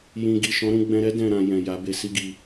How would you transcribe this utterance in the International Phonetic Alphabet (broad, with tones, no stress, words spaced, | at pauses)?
jĩ˨ɡi˨ʃɔ̃˨˦ɾũ˧ ɡ͡bɛ̃˧ɾɛ˦ dɛ̃˦˨ɾã˧jɛ̃˨ ja˨˦be˧si˦ɡi˧